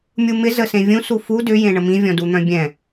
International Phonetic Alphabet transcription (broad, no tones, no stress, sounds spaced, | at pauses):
mʲ u m ɪ z ə s ẽ vʲ ũ s u f u d ʏ j ẽ ɳ ə m ĩ vʲ ɔ̃ d u n̪ œ̃ bʲ ɛ̃